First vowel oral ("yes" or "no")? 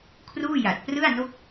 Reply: yes